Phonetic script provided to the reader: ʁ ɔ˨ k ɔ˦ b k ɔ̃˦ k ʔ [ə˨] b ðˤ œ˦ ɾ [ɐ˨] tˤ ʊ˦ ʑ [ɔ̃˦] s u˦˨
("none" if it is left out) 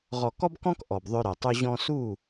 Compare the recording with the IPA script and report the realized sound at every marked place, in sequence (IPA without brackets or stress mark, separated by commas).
ɔ˨, ɐ˨, ɔ̃˦